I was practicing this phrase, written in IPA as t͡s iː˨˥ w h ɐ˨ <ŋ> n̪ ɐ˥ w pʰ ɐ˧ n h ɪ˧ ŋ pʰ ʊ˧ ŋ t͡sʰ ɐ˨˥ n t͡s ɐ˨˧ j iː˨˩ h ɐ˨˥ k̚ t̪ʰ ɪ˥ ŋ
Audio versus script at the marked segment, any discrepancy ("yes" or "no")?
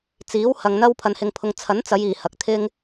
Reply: no